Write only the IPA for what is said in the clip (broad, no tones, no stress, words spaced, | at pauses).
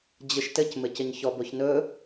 d͡ʑɯʃtɘc mɘcɘɲçɔ boçnɵ